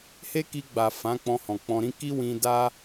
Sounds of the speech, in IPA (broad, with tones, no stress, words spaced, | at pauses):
he˦ki˧ɡ͡ba˨ fã˨˦k͡pɔ̃˧hɔ̃˨ k͡pɔ̃˧ɾĩ˦ ki˦ wĩ˧da˦